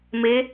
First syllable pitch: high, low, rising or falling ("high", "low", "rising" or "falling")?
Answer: rising